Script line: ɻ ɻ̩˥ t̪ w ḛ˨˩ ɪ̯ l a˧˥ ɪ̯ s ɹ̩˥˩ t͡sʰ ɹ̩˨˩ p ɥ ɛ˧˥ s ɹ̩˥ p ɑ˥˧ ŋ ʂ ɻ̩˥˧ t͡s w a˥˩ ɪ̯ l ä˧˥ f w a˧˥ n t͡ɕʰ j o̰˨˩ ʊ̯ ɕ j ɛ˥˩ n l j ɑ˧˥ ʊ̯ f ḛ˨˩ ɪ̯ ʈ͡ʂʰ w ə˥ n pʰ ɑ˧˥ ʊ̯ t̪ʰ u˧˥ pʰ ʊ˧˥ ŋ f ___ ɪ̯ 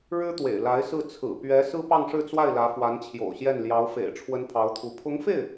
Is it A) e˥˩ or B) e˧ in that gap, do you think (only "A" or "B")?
A